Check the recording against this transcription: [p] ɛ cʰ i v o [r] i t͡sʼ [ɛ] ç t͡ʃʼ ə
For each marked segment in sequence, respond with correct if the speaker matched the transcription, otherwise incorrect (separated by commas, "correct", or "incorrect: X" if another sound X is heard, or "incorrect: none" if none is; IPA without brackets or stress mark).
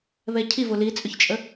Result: incorrect: β, incorrect: l, incorrect: ʏ